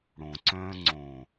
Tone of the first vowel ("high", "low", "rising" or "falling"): low